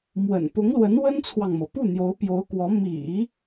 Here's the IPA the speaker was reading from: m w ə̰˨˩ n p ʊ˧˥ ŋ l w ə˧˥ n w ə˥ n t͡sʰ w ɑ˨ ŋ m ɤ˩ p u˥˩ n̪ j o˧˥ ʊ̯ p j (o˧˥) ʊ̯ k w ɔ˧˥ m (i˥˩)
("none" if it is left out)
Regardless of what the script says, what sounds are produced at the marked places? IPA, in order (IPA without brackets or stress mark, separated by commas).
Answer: o˧˥, ḭ˨˩˦